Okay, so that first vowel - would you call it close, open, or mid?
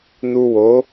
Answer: close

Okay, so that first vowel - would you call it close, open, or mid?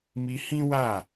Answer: close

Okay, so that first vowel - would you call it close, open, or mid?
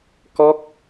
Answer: mid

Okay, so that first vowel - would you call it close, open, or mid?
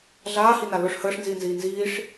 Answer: open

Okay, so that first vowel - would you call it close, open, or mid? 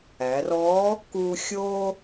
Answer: open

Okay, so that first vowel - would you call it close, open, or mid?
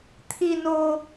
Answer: close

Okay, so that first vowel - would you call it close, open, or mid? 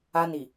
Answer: open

